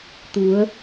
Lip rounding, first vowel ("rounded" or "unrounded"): rounded